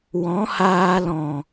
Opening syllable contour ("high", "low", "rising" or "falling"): rising